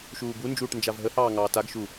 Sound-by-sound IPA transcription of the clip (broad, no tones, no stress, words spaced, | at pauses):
ʃuːbund͡ʒuːʈ nd͡ʒavɦəhɑː ŋɑːtaɡʃu